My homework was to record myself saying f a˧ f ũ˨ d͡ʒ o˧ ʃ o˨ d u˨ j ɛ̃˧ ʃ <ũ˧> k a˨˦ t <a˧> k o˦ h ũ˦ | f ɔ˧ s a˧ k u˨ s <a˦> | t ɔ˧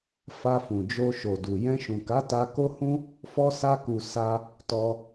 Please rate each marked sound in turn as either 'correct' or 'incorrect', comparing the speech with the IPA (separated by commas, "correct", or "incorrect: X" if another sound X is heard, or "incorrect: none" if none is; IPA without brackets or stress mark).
incorrect: ũ˨, correct, incorrect: a˧